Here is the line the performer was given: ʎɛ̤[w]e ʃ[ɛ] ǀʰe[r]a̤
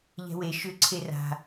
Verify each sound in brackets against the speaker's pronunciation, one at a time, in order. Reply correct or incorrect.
correct, incorrect: ʏ, correct

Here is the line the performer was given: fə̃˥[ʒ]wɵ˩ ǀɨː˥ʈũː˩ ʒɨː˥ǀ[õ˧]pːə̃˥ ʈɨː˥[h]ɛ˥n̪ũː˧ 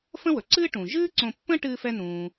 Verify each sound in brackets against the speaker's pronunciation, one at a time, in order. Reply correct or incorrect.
incorrect: none, correct, incorrect: f

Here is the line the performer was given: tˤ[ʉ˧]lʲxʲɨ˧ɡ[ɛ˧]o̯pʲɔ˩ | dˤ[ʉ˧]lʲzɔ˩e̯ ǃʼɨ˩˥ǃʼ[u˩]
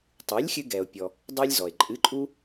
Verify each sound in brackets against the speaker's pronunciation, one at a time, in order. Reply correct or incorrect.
incorrect: ʉ˩˥, incorrect: ɛ˩, correct, incorrect: u˧

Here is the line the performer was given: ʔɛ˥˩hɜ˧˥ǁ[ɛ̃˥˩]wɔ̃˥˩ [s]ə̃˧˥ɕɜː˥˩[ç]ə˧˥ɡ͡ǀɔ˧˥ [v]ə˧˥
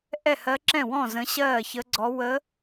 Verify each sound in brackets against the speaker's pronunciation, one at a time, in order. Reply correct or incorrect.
correct, incorrect: z, correct, incorrect: w

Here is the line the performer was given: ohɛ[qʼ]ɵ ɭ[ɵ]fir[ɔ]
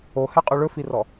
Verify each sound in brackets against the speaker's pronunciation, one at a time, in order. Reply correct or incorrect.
correct, correct, correct

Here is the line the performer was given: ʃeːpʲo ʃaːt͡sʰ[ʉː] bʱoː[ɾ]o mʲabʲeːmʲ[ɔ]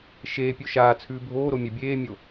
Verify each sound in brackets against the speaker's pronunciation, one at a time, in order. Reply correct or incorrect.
correct, correct, incorrect: o

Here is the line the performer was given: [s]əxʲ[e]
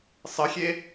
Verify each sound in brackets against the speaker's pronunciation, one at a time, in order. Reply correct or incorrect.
incorrect: sˤ, correct

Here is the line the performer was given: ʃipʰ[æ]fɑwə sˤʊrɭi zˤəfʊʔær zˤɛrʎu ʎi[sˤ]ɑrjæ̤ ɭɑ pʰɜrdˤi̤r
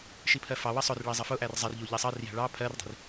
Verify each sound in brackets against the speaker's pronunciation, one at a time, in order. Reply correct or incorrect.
incorrect: ɜ, correct

